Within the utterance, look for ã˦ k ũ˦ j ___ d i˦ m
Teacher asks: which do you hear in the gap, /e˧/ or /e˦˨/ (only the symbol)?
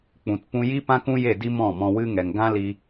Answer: e˦˨